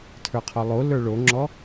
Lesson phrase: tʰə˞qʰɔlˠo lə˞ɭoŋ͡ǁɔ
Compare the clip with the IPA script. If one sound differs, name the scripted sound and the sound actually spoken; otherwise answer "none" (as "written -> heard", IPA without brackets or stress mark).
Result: none